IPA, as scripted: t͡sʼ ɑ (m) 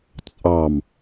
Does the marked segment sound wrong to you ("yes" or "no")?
no